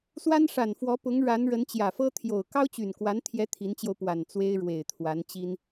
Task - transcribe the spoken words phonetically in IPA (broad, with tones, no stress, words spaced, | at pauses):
swa˥nʂa˨˩nfwɔ˧˥ pʊ˧˥ŋɻa˧˥n ɻə˧˥nt͡ɕjä˨˩fɤ˥ t̪ʰjo˨˩ʊ̯ kɑ˥ʊ̯t͡ɕy˨˩nkwa˧˥n t̪ʰjɛ˧˥ t̪ʰi˧˥nt͡ɕjo˧ʊ̯pwa˨˩n t͡swe˥ɪ̯ ɻwe˨˩ɪ̯t̪ʰwa˧˥nt͡ɕi˥n